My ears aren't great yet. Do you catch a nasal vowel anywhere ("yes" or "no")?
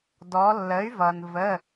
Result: no